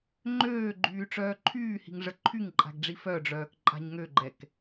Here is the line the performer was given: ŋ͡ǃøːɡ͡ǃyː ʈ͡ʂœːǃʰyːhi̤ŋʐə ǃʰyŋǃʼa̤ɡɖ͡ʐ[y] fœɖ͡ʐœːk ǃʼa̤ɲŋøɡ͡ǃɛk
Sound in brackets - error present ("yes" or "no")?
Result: yes